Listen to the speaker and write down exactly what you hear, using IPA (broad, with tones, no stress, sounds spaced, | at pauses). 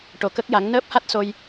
ʈ o˧˥ k ə˦˥ k̚ j a˧˥ ŋ n əː˦˥ p̚ h a˦˥ t̚ s o˧ j